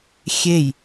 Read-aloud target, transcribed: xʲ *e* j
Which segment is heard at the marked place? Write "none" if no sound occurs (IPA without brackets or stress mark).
e